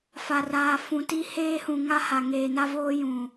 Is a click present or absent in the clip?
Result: absent